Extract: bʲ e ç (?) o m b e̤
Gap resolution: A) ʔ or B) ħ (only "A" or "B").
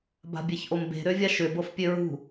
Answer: A